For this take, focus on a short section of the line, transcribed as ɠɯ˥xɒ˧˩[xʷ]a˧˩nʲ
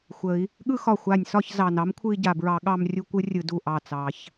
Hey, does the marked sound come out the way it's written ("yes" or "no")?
yes